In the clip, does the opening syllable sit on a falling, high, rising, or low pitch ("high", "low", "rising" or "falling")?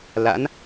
rising